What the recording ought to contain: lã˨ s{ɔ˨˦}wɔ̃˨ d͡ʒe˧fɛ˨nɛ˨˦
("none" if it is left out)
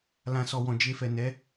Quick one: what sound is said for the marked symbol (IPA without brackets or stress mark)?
ɔ˨